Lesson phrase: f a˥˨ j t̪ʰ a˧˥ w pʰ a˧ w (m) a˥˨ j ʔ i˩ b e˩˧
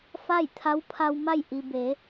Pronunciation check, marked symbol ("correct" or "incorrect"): correct